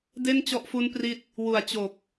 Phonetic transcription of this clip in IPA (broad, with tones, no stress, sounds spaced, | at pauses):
d e˥˩ n t͡ɕ ɔ˦˥ ʔ f u˦˥ n p r i˦˥ t̚ | w u˨˩ a̯ t͡ɕ o˨˩ k̚